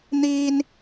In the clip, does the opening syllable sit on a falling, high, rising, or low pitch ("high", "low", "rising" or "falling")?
high